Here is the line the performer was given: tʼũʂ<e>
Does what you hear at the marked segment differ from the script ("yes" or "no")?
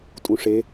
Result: no